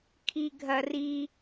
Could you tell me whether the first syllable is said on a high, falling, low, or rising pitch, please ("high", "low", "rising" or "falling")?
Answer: low